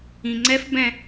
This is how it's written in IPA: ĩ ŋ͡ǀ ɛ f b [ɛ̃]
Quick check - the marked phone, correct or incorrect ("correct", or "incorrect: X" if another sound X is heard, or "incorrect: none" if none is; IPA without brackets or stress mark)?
correct